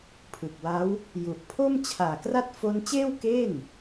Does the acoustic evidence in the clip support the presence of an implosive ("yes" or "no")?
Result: no